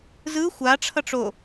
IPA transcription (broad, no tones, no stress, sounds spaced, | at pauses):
z ɯ xʷ a ʈ͡ʂʰ ʌ ʈ͡ʂ o